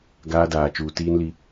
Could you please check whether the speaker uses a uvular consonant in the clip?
no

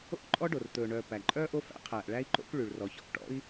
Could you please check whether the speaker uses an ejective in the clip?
yes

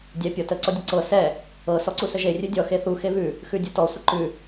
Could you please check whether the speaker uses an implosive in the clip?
no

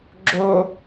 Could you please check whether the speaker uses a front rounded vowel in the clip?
no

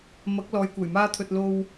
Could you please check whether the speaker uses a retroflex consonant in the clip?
no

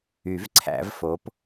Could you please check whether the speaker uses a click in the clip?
yes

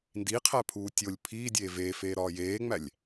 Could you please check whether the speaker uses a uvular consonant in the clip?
yes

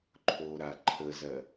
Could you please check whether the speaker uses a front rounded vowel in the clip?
no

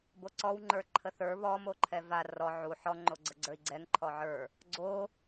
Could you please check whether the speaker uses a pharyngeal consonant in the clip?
yes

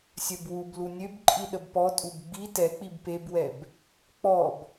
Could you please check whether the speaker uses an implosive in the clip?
yes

